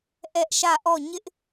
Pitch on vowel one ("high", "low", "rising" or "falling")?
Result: high